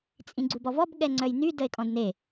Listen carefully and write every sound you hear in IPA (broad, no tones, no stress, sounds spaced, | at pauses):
t͡sʼ ĩ ɡ͡ǀ u b ɔ v ɔ b ɠ ɛ ŋ͡ǀ œ j n y d ə e̯ kʼ ɔ̃ d n e